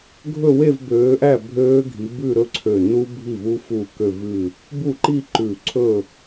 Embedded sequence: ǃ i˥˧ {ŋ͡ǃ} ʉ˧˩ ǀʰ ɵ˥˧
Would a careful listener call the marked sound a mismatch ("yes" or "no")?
yes